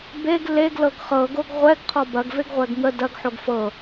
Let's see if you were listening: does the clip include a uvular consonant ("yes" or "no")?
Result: yes